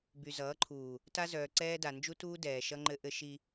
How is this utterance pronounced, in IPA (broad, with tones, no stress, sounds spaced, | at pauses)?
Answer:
b y˨ z ʌː˨˦ ǃʰ uː˨ | t a˦ z œː˨ ǀ ɛː˦ d a˨ n d͡ʒ u˦ t uː˦ d ɛː˨ ʃ ʌ˦ ŋ͡ǃ ɘ˦ ʔ ɘ˦ ʃ i˦